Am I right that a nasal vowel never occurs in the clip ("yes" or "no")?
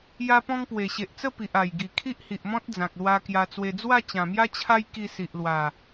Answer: no